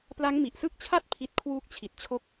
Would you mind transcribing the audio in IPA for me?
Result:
p l a˦˥ ŋ m i˨˩ ʔ s ɯ˥˩ k̚ t͡ɕʰ a˥˩ t̚ pʰ i˦˥ t̚ kʰ w uː˦˥ k̚ t͡ɕʰ i˨˩ t̚ t͡ɕʰ o˦˥ k̚

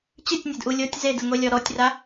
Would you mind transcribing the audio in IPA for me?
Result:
t͡ɕ ɨ tʲ nʲ ɛ d ʔ u lʲ o tʲ z e d ɨ ŋʷ e lʲ ɔ ɾ ɔ tʲ r a

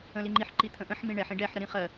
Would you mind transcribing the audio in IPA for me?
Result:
ə̃ l i ŋ͡ǃ i ħ ǃ i t̪ʰ ə̃ ʔ ə̃ ħ m ĩ ɳ ɛ ħ ĩ ɖ ɛ ħ ɾ ə ɾ ĩ χ ɜ

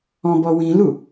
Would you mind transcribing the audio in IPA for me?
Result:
ɔ̃ b ɔ w ĩ l u

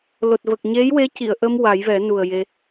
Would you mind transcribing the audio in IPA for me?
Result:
l o˨˩ t̚ v ə˨˩ k̚ ɲ e˧˥ j w e˧˥ c i˨˩˨ ə̯ ʔ ə˧ m w a˨˩˦ j v ɛ˨˩˦ n u˨˩ ə̯ j e˧

